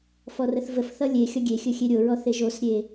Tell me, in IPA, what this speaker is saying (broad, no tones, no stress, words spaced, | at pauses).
fɔrəθvəfθʌ lʲe xʲʌɡʲexʲɵ xʲeɾʲoɹɔ θeʒosɾʲe